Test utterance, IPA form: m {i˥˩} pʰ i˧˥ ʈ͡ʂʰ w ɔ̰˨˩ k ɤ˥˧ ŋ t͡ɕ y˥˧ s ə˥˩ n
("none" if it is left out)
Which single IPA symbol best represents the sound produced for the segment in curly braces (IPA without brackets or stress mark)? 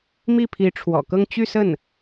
i˥˩